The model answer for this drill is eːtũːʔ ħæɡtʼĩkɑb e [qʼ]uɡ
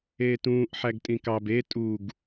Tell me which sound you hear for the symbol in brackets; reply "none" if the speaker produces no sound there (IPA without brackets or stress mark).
tʼ